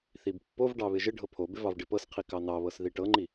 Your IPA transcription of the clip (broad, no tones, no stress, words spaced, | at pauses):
θibpːovɖɑ βɪʒɪɖʱɤ pʰobɪ vɑvɖɪpɤsqʰi kɑnɑβɤs ðiʈɤŋ͡ǃi